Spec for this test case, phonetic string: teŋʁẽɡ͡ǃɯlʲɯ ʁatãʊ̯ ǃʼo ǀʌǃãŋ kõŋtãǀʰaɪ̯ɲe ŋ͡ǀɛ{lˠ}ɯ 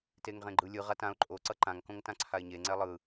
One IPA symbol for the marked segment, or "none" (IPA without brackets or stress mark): lˠ